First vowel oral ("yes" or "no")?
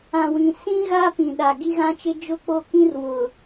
no